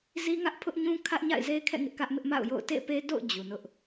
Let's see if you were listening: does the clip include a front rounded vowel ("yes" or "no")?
no